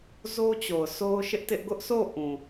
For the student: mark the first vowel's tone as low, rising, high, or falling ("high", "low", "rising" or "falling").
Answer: high